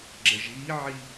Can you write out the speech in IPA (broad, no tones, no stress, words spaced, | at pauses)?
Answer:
ɡ͡ǁɐʒɣiʕi